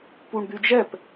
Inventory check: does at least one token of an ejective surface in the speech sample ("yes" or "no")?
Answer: no